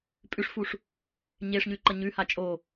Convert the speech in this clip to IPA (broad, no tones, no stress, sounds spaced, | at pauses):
pʼ ʉ ʂ f u ʂ | ɲ e ʂ ɲ ʉ ǃ ɐ ɲ ʉ h a t͡ʃʼ o